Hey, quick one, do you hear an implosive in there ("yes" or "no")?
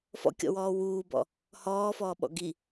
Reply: yes